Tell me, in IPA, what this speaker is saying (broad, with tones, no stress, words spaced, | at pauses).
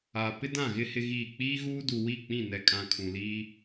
aː˨pɪ˦dã˦˨ɣɪ˦ hɪ˦ɣiː˦˨ k͡piː˦ɣuː˦du˨ wi˦˨k͡pĩ˦˨ nɛ˨kʼã˨ kʰũ˨liː˦